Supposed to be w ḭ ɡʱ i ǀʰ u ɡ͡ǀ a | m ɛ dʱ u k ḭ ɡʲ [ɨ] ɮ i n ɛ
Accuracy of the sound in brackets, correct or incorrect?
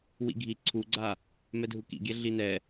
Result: incorrect